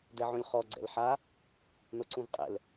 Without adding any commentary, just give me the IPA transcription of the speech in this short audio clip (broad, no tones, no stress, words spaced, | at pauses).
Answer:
dɛʕũlʲχɔ ɡ͡ǀɛ̰lħa | noǀũvqʼɛ̰l